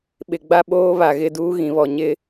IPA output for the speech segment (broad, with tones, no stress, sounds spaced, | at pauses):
ɓ ɪ˨ ɡ͡b a˦ ɓ oː˦ β a˨ ɣ ɪ˦ d uː˦ ɣ ĩ˨ β ɔ˨ ɲ ɪ˦